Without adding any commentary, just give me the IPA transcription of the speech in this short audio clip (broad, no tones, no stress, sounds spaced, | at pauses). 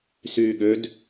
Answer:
s yː ɠ ø d